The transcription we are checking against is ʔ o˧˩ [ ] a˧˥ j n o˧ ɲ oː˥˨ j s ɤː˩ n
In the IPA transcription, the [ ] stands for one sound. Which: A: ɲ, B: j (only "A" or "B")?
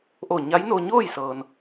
A